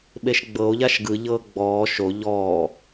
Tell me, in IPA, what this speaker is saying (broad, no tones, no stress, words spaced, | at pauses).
ɓeʃɡ͡bɤo̯ʎaʃ ɡɯʎɤː ɡ͡bɔː ʃo ʎɔː